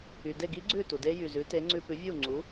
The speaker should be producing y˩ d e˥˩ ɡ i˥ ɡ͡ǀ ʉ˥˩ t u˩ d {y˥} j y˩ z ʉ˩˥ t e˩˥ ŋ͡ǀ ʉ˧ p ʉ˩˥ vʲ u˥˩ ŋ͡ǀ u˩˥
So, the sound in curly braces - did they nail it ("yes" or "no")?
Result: no